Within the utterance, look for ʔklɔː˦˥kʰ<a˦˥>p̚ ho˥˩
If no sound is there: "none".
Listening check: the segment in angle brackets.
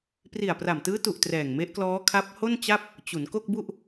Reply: a˦˥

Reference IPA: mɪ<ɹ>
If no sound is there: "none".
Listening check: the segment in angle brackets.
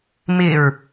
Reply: ɹ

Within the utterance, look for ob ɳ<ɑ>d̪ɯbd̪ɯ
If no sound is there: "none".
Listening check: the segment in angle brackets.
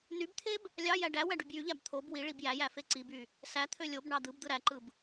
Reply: ɑ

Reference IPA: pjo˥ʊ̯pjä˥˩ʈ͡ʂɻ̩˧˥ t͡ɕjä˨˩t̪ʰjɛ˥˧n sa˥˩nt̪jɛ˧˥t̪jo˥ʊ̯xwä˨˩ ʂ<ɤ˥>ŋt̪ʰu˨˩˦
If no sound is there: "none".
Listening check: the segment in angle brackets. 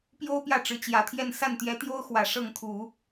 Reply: ɤ˥˩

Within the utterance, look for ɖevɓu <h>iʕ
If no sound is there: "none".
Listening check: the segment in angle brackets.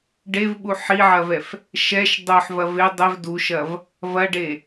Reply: ħ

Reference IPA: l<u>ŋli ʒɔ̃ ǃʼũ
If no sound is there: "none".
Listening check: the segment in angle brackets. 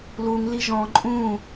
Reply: u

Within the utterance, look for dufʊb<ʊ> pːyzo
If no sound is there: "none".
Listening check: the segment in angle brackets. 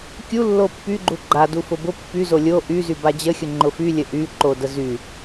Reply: ʊ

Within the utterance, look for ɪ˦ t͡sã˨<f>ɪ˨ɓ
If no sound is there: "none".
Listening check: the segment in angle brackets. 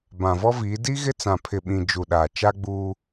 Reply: pʰ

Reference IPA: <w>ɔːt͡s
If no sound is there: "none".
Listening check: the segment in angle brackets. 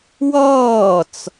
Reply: w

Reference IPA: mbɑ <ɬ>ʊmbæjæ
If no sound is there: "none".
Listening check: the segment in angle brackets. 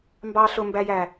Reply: ɬ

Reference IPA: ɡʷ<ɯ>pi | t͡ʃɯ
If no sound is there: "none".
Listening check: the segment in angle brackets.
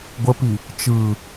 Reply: ə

